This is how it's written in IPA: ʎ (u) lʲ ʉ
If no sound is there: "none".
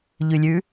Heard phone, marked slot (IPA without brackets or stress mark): ʉ